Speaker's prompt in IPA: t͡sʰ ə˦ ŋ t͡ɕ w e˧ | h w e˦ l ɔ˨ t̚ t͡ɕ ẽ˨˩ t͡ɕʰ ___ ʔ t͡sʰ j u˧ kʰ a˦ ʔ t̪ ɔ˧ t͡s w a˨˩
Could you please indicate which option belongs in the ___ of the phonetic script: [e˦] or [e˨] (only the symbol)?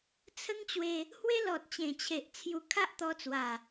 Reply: e˨